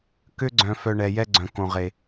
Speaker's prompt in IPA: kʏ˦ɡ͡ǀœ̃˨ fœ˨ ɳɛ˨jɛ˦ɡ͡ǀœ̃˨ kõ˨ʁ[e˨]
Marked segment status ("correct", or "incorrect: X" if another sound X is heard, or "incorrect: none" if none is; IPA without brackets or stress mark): correct